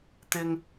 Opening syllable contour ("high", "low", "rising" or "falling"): high